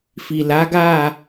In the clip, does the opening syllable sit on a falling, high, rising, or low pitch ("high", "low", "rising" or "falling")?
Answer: low